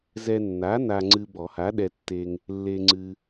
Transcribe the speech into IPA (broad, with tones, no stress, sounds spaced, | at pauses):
z ɛ˧ nː a˨˥ n a˧ ŋ͡ǀ ɨ˧ b ɔ˨˩˦ h a˨˥ ɗ ɛ˧ tː e˧ ŋ | lː e˧ ŋ͡ǀ ɨ˧